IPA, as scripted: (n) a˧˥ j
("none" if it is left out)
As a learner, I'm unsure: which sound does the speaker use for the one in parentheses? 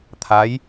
t̪ʰ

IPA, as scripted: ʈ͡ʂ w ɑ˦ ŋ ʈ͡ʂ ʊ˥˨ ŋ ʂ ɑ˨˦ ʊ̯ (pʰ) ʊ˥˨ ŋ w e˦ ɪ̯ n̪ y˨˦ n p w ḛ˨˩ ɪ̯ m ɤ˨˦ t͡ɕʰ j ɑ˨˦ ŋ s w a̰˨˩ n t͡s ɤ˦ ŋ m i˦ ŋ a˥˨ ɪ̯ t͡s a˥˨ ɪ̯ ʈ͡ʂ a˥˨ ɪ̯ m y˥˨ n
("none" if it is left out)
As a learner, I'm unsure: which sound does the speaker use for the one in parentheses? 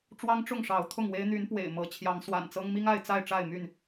t̪ʰ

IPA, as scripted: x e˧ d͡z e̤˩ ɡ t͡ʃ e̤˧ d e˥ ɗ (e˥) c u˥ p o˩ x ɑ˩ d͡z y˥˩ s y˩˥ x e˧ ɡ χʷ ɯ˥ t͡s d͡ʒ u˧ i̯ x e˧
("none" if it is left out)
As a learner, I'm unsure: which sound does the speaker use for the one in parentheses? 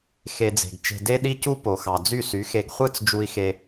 i˥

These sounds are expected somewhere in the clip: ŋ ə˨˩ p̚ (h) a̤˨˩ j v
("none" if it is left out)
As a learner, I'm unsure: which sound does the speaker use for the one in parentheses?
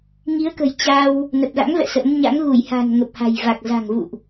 h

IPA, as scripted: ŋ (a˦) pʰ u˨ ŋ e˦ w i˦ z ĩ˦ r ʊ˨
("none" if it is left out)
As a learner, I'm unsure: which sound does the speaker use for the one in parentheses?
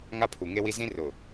a˦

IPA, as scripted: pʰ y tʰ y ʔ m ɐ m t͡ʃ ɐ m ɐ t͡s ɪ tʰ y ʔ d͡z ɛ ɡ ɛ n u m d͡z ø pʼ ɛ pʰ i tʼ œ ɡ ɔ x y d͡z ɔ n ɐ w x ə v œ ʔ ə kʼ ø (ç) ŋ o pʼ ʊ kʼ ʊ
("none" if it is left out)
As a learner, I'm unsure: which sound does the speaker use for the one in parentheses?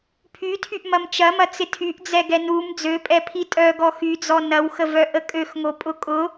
x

